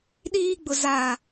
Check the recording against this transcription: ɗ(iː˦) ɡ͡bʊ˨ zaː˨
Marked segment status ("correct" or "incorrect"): correct